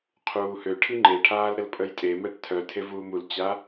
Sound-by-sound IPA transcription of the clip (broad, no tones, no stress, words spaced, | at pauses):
qʰuːhø ʈʰiŋ͡ǃeʈʰaːl ɾəlpʼəjtʼemɛʈ tʰœtʰevuːm ult͡ɕa